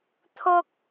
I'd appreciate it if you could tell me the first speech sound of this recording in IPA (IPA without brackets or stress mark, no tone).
t̪ʰ